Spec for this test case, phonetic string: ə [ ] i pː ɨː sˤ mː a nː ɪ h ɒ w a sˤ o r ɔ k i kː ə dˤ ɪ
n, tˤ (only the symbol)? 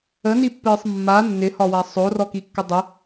n